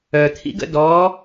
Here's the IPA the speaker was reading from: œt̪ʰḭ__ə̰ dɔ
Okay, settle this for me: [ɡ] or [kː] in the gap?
ɡ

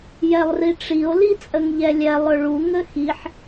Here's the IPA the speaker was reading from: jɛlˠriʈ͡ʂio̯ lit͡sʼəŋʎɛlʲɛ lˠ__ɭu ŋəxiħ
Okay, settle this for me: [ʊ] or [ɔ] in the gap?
ʊ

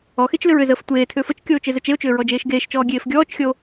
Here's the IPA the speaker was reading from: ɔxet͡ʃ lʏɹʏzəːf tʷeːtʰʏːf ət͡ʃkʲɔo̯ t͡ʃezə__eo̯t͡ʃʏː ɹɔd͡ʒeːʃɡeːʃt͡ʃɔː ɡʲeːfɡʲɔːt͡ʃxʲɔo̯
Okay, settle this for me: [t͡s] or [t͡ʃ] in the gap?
t͡ʃ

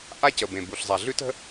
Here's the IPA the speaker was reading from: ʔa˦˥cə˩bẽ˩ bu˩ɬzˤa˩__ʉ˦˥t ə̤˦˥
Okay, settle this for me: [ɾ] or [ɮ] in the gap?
ɮ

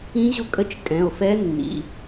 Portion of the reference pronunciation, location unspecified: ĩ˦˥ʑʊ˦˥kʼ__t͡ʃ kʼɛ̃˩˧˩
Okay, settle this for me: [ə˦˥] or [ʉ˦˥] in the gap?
ə˦˥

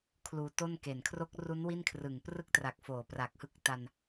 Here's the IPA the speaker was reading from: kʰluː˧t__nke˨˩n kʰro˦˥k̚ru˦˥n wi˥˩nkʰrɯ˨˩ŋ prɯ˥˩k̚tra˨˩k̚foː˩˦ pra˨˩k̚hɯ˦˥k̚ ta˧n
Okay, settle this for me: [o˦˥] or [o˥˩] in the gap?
o˥˩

